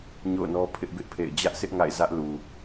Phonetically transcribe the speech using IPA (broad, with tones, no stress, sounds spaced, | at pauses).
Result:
ɲ o̰˦˨ ʊ̯ n ɔ˦ pʰ ɪ˦ ʔ b ɪ˦ ʔ pʰ ḛ˦˨ ɪ̯ d͡ʑ ä˦ ʔ sʰ ɪ˦ ʔ ŋ a̰˦˨ ɪ̯ z ä˦ ʔ l u˨